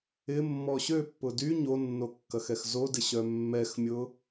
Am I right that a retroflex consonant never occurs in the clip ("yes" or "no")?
yes